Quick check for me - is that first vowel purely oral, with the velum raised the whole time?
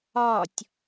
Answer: yes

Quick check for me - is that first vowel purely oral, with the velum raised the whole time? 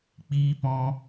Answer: yes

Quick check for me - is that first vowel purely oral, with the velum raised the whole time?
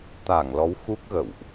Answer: yes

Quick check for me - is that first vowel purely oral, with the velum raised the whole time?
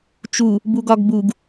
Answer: yes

